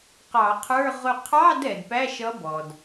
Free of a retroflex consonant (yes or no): yes